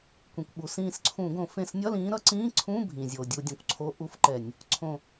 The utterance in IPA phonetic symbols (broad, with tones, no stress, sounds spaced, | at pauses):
kʷ ĩ˩ kʷ ɓ u˩ s ĩː˧˩ s ǀʰ ũ˧˩˧ ɡ õ˧˩˧ f ẽ˧˩ s nʲ ʌ˧˥˧ l ĩː˨˦ ɾ ʌ˨˦ ǀ ĩː˧˥˧ ǀʰ ũ˧˥˧ bʱ ĩ˩ zʲ o˩ dʲ u˧˩˧ dʲ õ˩ kʷ ǀʰ o˧˥˧ ʔ u˧˥˧ f ǃ ɛ˧˩˧ nʲ | ǀʰ õ˧˩